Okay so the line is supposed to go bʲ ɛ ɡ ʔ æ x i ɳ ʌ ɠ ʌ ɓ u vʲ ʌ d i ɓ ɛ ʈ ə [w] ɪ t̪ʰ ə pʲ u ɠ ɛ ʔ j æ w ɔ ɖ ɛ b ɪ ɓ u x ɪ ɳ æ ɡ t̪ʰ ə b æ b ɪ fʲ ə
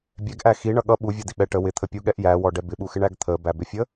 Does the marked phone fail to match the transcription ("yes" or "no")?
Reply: no